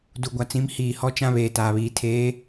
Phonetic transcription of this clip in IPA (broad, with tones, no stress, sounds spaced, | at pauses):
d u˨ ɡʷ a˨ t͡s ĩ˨˦ m h iː˨ h ɔ˦ t͡ʃ ã˦ β eː˨ t aː˨ β iː˨ tʰ eː˨˦